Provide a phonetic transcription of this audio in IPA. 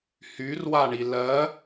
hyrwaɳi lɜ

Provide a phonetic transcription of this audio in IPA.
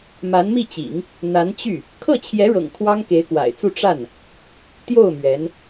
ma˧˥nmi˥˩t͡ɕḭ˨˩˦ŋ | n̪a˧˥nt͡ɕy˥˩ | kʰɤ˥˩t͡ɕʰjɛ˧˥ɻɤ̰˨˩ŋ kʰwɑ˥ŋke˧˥ɪ̯kwa̰˨˩ɪ̯t͡su˥˧ ʈ͡ʂa˥˩n | t̪jo˥˩ʊ̯ mɥɛ˧˥n

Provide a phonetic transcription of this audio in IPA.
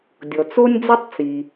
dʲɔ˩t͡so˥nʲd͡zi˥tˤ t͡si˩

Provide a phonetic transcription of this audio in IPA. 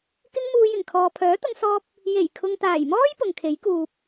kɪ˥ŋmuː˧jɪ˨˩ŋ kʰɔː˨pʰœː˨˥t̪ʊ˧ŋsɔː˧p̚ | je˨˩jkʰʊ˨ŋt̪aː˨˩jmɔː˥j pʊ˨ŋkʰe˨˥jkuː˨p̚

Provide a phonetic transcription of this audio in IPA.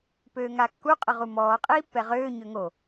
pøːŋakːu qʼəʁumɔː qʼiːpːɛʁøː ɲøŋo

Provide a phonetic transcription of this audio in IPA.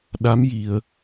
ɗa˧˥mji˨˩˨ə̯

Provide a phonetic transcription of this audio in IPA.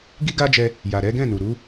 ɡi˦ɡa˦d͡ʒɛ˧ | ja˨ɾɛ˨˦ɡɛ̃˦˨nu˨ ɾu˨˦

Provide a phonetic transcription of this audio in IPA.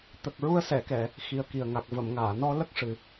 t̪ə˨˩k̚ɹu˧ə̯sɛ˨˩˨kɛ˨˩˨ | xi˨˩ə̯ki˨˩ə̯ŋa˨˩k̚ və˨˩˨mŋaː˨˩˨nɔ˧lə˦˥k̚ ʂɨ˨˩

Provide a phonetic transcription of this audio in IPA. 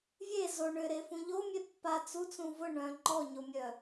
vʲe zo ɳʏɾefũ ʎomʲe pːa t͡sut͡sũ vʊ ɳœ̃ ŋ͡ǃɔɲomʲœ

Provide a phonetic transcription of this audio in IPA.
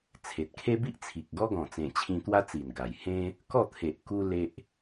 t͡sʰe˨t̚kʰe˦bi˦ʔt͡sʰi˨k̚ ɡɔ˦ɡɔ̃˨˩t͡sẽ˨˩t͡ɕʰĩ˧ t̪wa˦t͡si˨˩nɡa˨˩j hẽ˦ | kɔ˥˧t̪ʰe˨ʔ ku˦le˦ʔ

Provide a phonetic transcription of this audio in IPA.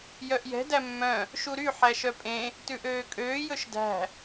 jœʔjɛ̤ dæmːœ̃ | ʃuɾy ħæʃœpʼẽ | tʉʔøːkʼøː jɵʃdæ̤

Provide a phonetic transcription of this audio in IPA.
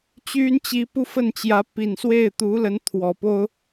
t͡ɕy˥nt͡ɕi˧˥ pu˥fə˥˩nt͡ɕjä˧˥ pi˨˩nswe˥˩ɪ̯t̪u˧˥lə˧˥n t̪ʰwɔ˨˩po˥ʊ̯

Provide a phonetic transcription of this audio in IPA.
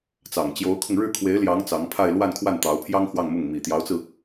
t͡sɑ˨˩ŋt͡ɕjo˧˥ʊ̯kʰʊ˧ŋ ɻɻ̩˥˩kʰwe˧˥ɪ̯ljɑ˧˥ŋ t͡sɑ˧˥ŋpʰa˥˧ɪ̯ lwa˥˧nkʰwa˥˩nt̪ɑ˧˥ʊ̯pʰjɑ˥ŋ xwɑ˥˧ŋmʊ˥˩ŋ mi˨˩t̪jɑ˧˥ʊ̯t͡sɹ̩˧

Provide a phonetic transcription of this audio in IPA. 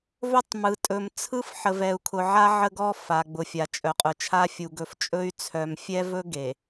vɵ˦tˤmɯ˨ tʼɵ˨m t͡sʰɯ˦f ħə˨vɛ˨u̯kʰʊ˨ʕa˦ ʕə˦ɡɔ˦ fa˨ ɡ͡bʊ˨fʲa˨t͡ʃʼœ˨ qʼʊ˨t͡ʃʰa˦ fʲu˨ ɡɵ˨ft͡ʃʼɵ˦y̯ t͡sʰœ˨mfʲɛ˦vɵ˦ ɡe˨

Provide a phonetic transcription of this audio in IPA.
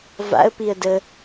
va̰ə̯piə̯ də

